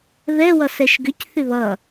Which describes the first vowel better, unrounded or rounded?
unrounded